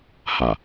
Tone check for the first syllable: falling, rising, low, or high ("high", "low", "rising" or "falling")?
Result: low